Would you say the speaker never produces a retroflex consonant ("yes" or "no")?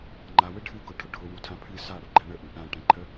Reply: no